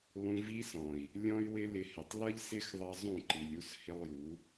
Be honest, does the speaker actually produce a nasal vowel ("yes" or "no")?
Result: yes